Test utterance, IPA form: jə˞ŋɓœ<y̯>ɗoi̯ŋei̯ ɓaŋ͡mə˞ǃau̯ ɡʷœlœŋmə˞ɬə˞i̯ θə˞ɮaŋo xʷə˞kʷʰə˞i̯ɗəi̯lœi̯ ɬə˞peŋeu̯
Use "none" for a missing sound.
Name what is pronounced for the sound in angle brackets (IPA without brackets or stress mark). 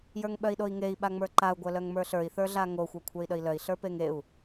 i̯